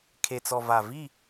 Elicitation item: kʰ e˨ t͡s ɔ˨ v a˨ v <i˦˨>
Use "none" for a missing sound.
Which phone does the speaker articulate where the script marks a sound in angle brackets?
i˦˨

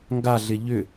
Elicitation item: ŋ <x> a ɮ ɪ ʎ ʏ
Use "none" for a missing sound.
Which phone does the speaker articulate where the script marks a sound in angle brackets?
ɡ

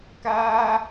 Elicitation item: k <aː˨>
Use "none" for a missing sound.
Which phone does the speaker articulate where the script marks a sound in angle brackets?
aː˦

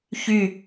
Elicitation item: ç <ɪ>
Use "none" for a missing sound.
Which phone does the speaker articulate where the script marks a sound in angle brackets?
y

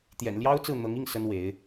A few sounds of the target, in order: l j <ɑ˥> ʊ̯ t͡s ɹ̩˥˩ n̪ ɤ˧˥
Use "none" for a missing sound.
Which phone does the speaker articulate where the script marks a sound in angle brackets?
ɑ˥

